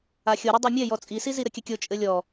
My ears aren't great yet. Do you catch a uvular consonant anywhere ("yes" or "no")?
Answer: no